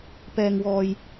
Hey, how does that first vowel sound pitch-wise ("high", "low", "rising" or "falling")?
low